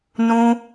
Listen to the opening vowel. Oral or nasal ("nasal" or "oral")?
nasal